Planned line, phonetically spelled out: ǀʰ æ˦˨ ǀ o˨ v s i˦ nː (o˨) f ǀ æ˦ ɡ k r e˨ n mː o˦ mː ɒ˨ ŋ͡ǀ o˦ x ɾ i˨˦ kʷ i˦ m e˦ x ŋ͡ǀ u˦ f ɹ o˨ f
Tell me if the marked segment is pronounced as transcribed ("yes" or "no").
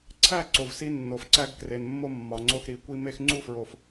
yes